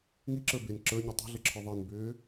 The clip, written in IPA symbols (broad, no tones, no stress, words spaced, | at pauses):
ŋiǁə˞ ben ǁə˞ɲɛ tˤɛ̤ɮəǁʰə˞ ðˤenbʏː